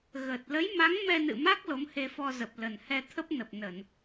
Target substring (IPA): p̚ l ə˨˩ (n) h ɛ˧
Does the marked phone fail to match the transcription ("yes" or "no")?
no